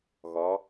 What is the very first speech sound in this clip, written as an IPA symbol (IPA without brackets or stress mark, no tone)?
ɣ